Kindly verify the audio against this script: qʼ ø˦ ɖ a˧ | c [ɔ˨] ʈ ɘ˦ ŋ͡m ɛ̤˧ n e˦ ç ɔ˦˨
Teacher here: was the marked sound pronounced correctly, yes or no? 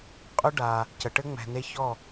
no